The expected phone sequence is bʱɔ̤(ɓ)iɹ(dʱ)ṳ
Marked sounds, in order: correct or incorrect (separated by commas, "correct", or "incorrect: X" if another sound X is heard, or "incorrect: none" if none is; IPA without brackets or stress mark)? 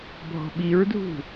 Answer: correct, correct